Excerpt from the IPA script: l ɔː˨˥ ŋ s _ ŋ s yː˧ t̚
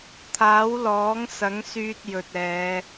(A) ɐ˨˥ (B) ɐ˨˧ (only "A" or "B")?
A